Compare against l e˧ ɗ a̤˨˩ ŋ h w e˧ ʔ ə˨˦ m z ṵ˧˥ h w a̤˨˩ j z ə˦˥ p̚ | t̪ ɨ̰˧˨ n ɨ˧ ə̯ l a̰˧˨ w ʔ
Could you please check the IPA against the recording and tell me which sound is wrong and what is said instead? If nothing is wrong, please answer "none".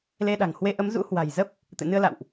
none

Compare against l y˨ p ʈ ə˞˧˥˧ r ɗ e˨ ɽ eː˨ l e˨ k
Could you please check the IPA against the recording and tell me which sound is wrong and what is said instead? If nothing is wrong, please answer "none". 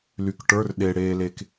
p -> k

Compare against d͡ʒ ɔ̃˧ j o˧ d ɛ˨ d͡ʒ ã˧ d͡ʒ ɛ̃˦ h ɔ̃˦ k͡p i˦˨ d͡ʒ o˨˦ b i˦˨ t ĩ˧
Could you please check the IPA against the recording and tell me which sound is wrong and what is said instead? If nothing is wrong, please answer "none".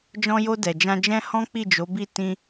none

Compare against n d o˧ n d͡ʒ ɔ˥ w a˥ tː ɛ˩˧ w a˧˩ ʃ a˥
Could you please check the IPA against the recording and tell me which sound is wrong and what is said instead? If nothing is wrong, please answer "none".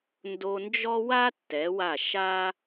none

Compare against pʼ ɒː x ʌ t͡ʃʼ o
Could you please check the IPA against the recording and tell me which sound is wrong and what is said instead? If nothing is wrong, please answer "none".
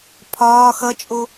pʼ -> pʰ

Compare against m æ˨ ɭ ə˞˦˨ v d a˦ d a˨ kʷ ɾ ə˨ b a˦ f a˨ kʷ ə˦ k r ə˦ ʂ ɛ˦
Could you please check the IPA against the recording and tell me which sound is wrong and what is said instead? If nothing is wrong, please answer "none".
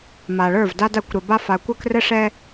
æ˨ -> a˨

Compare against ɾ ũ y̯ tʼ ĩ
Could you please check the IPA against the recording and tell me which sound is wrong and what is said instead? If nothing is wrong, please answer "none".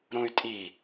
ĩ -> i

